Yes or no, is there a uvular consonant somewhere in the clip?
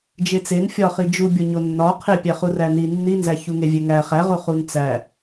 yes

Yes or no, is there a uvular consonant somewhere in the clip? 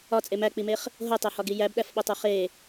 yes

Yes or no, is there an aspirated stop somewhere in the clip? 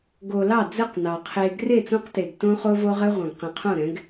yes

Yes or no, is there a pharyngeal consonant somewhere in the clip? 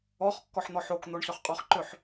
yes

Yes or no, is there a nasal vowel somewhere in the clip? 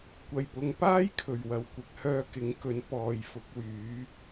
no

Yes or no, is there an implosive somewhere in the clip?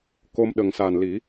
yes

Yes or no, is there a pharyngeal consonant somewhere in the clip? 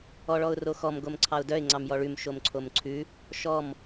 no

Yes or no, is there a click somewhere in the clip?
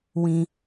no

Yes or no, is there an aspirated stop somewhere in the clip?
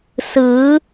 no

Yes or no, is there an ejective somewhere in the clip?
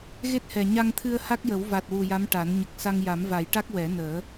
no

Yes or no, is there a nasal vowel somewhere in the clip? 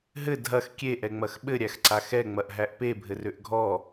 no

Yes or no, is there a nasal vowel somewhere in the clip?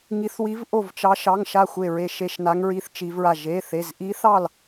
no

